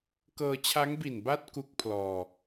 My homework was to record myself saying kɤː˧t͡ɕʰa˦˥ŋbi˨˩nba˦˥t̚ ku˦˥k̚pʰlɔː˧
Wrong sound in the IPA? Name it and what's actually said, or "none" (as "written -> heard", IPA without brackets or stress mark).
none